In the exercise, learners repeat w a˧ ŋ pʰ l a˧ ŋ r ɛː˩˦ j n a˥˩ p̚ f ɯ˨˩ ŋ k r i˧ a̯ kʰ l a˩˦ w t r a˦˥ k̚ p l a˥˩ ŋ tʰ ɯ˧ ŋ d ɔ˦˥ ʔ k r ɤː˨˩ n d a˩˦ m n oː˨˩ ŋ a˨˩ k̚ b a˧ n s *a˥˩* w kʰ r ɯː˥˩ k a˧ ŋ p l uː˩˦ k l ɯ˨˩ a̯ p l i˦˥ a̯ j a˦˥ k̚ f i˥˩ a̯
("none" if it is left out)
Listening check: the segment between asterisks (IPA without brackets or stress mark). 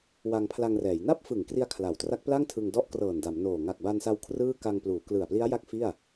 a˧